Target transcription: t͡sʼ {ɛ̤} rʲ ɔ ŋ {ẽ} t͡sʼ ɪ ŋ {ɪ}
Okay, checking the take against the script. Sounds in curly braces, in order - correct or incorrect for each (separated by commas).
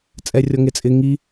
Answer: incorrect, incorrect, incorrect